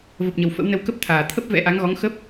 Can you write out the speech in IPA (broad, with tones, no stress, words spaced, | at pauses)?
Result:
və˨˩p̚ɲə˨˩w fə̰˧˥wnə˧w kə˦˥p̚t̪ʰaː˨˩ t̪ʰə˦˥p̚ vɛ̰˧˥ʔa˨˦ŋɣɔ˨˦ŋ xə˦˥p̚